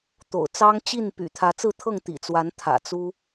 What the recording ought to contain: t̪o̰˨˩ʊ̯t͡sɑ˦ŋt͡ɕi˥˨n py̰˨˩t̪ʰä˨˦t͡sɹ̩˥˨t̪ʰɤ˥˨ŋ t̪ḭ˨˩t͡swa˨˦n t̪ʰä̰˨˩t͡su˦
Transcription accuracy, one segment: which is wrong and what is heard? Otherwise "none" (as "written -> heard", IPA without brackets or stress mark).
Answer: none